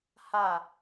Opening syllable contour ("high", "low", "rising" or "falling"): falling